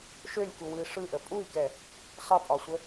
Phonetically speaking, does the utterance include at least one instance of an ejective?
yes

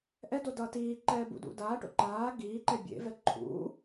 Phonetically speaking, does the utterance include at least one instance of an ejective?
no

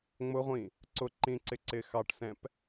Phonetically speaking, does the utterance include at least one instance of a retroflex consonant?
yes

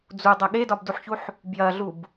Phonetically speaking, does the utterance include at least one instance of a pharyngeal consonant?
yes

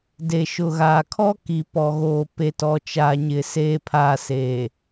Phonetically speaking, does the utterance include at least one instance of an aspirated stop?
yes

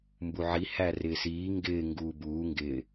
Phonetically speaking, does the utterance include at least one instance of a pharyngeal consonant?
yes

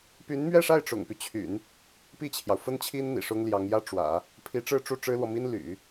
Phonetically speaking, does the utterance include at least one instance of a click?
no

